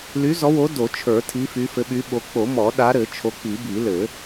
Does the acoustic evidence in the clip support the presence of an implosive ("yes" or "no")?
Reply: yes